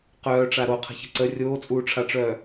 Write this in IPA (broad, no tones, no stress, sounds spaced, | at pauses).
q œː ʈ͡ʂ a ɾ o qʰ ə̤ ç ə̤ ǀ ə rʲ oː t͡sʼ uː ʈ͡ʂʰ a ʈ͡ʂ œː